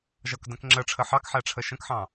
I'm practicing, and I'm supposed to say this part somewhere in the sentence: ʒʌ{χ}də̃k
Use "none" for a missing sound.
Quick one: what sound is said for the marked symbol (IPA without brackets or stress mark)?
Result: k